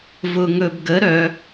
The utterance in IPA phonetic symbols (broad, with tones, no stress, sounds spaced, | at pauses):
v ʊ˧ ŋ ɵ˧ b ɡ ə˧˥ ɾ œ˧˥